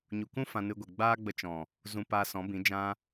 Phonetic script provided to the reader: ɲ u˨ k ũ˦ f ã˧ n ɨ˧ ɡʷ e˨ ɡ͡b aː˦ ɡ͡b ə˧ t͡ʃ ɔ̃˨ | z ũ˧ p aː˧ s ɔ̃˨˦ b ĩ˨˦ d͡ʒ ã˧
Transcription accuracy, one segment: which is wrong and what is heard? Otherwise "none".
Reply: none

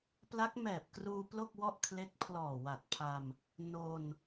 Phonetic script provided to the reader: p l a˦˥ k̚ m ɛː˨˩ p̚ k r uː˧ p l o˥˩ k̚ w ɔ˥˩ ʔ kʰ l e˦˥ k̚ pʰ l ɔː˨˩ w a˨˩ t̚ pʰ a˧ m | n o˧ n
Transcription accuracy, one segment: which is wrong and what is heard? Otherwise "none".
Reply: none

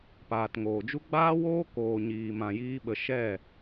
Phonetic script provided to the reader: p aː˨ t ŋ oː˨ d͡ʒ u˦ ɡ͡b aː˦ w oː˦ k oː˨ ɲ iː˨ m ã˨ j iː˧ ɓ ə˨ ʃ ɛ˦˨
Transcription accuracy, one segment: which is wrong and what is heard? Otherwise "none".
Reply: none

